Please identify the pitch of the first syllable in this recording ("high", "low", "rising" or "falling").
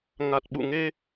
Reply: low